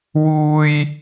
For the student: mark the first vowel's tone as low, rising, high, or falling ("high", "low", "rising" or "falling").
high